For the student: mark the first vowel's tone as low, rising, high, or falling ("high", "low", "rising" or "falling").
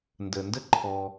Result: low